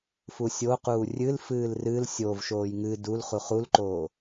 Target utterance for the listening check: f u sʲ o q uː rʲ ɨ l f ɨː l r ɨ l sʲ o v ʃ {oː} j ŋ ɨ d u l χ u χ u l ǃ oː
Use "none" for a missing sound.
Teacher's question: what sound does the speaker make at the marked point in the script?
oː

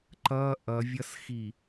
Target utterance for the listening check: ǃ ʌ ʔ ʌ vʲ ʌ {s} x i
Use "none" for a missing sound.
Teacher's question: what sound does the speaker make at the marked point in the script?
s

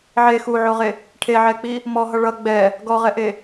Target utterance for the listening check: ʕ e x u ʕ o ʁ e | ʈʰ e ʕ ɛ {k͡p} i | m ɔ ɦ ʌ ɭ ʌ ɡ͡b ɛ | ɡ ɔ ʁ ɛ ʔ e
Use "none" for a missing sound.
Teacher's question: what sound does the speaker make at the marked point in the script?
k͡p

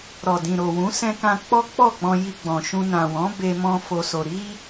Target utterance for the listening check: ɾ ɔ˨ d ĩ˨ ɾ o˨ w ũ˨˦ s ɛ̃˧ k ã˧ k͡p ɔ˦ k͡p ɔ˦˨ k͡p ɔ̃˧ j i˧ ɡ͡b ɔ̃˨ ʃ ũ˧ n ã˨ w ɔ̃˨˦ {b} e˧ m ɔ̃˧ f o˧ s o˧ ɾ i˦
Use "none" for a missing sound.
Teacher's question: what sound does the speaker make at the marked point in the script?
b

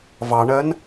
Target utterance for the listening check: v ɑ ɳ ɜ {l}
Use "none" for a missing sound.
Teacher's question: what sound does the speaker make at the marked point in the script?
n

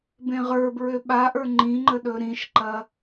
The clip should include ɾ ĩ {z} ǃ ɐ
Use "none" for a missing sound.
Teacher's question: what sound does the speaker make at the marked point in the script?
ʃ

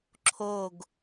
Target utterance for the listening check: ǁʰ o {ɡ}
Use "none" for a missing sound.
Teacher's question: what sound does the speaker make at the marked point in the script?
ɡ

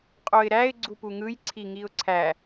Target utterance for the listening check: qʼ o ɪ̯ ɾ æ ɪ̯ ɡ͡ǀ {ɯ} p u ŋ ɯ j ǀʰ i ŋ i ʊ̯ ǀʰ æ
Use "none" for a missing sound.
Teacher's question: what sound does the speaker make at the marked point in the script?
u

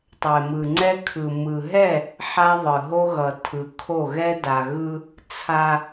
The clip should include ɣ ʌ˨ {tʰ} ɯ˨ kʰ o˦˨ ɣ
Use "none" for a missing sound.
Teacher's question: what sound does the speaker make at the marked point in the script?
tʰ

